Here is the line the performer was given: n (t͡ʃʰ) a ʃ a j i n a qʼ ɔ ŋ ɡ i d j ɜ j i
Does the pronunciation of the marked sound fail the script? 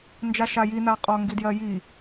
yes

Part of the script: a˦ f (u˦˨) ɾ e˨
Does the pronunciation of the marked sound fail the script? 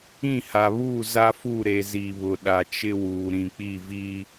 no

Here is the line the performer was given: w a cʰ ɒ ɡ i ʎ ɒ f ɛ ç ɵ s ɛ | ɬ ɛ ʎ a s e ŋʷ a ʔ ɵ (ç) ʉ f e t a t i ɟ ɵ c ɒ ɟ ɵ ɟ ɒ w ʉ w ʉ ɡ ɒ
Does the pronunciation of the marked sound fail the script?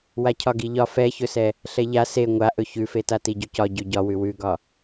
no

